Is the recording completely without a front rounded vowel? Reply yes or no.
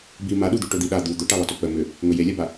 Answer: no